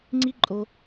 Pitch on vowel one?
high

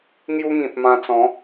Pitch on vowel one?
high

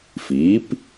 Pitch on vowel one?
rising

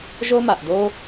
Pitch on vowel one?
high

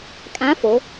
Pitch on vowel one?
rising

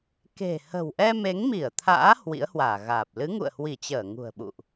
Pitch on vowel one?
low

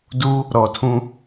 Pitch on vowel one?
high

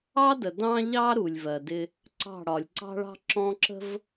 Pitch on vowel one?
high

